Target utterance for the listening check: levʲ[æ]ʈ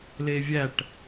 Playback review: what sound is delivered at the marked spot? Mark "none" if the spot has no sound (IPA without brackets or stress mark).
æ